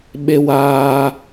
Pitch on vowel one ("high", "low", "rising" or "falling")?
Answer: low